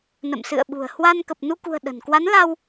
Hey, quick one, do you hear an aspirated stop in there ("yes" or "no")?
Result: no